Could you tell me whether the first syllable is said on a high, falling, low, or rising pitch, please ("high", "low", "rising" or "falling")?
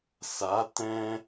rising